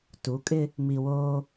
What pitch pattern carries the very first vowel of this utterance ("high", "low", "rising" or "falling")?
rising